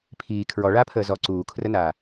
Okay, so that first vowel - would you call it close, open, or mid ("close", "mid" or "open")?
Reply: close